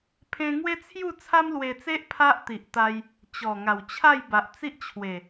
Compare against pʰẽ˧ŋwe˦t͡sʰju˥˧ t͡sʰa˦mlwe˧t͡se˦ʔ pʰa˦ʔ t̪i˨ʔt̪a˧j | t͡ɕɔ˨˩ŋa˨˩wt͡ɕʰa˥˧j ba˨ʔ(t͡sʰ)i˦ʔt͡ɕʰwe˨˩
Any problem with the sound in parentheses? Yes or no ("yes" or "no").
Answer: yes